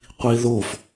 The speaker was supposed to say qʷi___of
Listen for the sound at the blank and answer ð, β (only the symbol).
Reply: ð